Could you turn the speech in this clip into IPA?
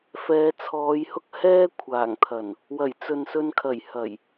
f ɛː˨˧ t͡sʰ ɔː˨˧ j h ʊ˥ k̚ h ɛː˥ kʷʰ aː˨˩ ŋ t̪ʰ ɐ˨˩ n | w ɐ˨˩ j t͡s ɵ˨ n s ɵ˧ n kʰ ɐ˨˩ j h ɐ˨˩ j

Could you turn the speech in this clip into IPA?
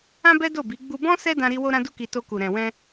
ã˦ b ɛ˦ d o˦˨ b i˨˦ ɡ͡b u˧ b ɔ̃˦ s ɛ˦ d ã˧ ɾ i˧ w o˦ ɾ ã˦ d u˦ k i˧ t o˧ k u˨ ɾ ɛ̃˨ w ɛ̃˧

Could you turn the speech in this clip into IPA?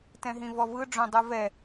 t ɛ̃ ɦ ĩ v ɔ v ɯ ɖ͡ʐ õ dˤ u v ɛ

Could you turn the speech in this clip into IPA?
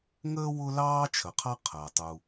ŋ əː˥ w ʊ˥ l ɑː˥ t͡ʃʰ ə˩ qʰ ɑ˥ qʰ ɜ˩ tˤ u˩

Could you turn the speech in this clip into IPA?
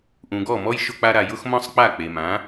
ʔ ũ˩ ɡ ɔ˥˩ m ɔ˥ j ʃ ʊ˧ k͡p a˧ ɾ a˩ j ʊ˥ x m ɔ̃˥ sˤ k͡p a˥˩ k͡p e˩ m ã˩˥

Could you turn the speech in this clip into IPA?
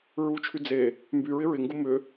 ɹ u t͡ʃʰ y d͡z e | m b y ɹ ɪ ɹ ɪ ŋ ɡ u m ʏ

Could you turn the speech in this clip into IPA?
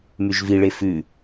m y ʒ v i ɭ e f ʉ

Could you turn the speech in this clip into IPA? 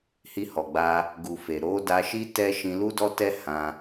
h i˧ h ɔ˨ ɡ͡b a˧ | ɡ u˨ f e˨ ɾ o˨˦ d a˧ ʃ i˦ t ɛ˦ ʃ ĩ˧ l u˦ d ɔ˦ t ɛ˦ h ã˧

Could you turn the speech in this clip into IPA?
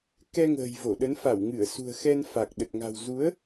k ɛ˧ ŋ ə̤ː˨˩ j v o˧˩ ɗ ə˨˦ n f a˧˩ w ŋ ɨ˧˩ ə̯ s ṳ˨˩ ə̯ x ɛ˧ n f a˨˩ k̚ ɗ ə˨˩ t̚ ŋ a̤˨˩ w z u˨˦ ə̯

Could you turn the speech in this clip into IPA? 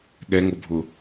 ɠ ɛ ŋ o bʱ ʊ

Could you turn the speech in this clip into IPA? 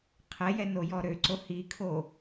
qʰ ɛ j ɛ n o j ɔ ɾ ø ǀ o h i kʰ o

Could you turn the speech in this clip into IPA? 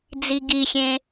d͡z i ɡ i xʲ ẽ

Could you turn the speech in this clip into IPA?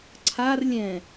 ǀʰ a r lʲ ɛ̃

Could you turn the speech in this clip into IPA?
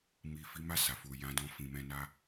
m i˨ f i˨˦ m a˦˨ s a˨ f u˨ j ã˨˦ d ɔ̃˧ f ĩ˨ m ɛ̃˧ n a˦

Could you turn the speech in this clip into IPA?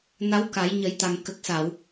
n a˧˥ w k a˨˩˦ j ɲ ə˨˩˦ j t̪ a˨˩ ŋ k ə˨˩ k̚ s a˨˩˨ w

